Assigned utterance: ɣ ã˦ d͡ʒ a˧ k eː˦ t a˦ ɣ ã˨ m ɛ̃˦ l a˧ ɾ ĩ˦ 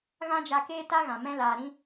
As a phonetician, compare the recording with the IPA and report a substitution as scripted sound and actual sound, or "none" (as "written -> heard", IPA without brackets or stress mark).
none